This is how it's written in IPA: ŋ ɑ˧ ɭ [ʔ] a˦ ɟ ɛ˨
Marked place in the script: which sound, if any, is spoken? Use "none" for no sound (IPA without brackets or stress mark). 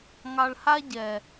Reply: h